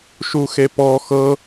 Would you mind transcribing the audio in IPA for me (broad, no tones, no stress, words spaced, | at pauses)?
ʃuxepɔ xɤ